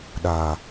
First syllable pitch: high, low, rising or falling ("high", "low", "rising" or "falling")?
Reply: low